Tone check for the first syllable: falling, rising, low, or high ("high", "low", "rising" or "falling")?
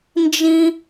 high